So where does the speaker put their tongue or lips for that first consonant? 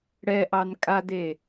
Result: retroflex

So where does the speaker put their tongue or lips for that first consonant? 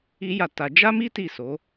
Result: palate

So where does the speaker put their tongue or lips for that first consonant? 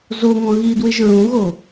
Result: tongue tip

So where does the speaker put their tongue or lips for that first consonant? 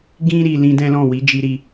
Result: velum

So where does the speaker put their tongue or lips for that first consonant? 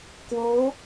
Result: velum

